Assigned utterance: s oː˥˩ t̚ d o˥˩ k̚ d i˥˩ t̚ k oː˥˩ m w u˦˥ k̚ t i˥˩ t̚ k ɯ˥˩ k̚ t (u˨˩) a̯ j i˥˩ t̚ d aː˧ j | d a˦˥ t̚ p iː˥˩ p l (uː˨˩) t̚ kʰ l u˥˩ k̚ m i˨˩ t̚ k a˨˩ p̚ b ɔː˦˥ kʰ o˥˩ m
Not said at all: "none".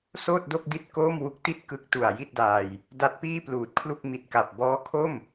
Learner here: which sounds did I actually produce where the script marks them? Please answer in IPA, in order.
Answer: u˨˩, uː˨˩

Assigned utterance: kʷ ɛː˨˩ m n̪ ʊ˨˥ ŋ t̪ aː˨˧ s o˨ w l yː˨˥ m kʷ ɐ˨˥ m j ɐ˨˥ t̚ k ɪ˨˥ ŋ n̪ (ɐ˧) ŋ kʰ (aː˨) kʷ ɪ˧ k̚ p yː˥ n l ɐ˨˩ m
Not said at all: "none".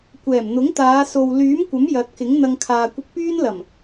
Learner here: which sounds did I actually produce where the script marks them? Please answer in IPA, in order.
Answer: ɐ˧, aː˨

